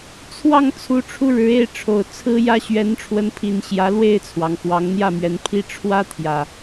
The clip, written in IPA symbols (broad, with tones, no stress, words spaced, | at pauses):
t͡sʰwɑ˥˨ŋ t͡sʰu˨˦ʈ͡ʂʰu˧ ɻɻ̩˨˦e˥˨ɪ̯ʈ͡ʂʰo˨˩ʊ̯ t͡sʰɹ̩˦jä˦ ɕɥɛ˨˦nʈ͡ʂʰwə˨˦npʰi˨˩n ɕjä˨˦lwe˥˨ɪ̯t͡sʰwɑ˩ŋ xwɑ˨˦ŋn̪jä˥˨mɥɛ˨˦npʰi˦ ʈ͡ʂʰwä˦t̪ʰjä˨˩